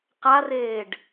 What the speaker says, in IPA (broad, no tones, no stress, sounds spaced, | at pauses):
q a r eː ɖ